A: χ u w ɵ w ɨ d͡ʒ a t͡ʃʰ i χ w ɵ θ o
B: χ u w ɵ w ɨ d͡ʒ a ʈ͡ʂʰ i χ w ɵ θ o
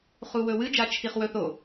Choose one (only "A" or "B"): A